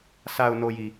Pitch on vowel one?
low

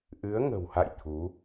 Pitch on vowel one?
rising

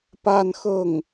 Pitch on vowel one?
falling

